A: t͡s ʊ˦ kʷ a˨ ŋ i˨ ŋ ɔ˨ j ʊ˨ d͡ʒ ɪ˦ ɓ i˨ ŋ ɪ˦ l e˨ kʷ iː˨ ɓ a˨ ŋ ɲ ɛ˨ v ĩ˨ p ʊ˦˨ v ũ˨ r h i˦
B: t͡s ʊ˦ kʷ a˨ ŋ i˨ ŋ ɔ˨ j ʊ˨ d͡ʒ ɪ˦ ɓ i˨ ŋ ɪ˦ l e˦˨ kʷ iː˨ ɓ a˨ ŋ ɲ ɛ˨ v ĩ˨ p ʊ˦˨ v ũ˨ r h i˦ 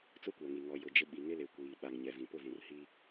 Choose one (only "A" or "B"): A